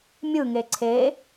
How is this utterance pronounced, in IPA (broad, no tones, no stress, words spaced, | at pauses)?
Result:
mʲɯŋe ǀʰe